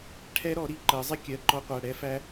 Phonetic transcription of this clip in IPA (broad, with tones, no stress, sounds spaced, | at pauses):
ʈʰ ɛ˦˥ ɾ ɔ˨˩˦ ɾ i˩˧˩ ǃ ɜ˨˩˦ zˤ ɪ˦˥ kʲ ɜ˩˧˩ ǃ ɔ˦˥ qʷ æ˩˧˩ ɽ ɛ˦˥ f æ˦˥